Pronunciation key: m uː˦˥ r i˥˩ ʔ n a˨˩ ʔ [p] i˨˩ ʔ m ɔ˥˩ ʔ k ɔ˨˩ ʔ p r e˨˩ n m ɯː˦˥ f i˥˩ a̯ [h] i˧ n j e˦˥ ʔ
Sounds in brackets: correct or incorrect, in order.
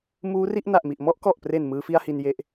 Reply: incorrect, correct

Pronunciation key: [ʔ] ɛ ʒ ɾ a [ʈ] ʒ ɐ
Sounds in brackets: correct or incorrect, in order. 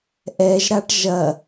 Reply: correct, correct

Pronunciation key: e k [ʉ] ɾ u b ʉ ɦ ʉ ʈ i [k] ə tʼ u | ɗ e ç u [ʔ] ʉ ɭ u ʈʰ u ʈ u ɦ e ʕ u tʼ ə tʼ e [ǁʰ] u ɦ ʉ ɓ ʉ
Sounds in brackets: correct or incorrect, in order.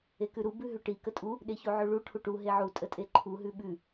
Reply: correct, correct, incorrect, incorrect

